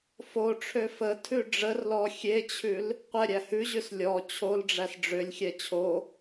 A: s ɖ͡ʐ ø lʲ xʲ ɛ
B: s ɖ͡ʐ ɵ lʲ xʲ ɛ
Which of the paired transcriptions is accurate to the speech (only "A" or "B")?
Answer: A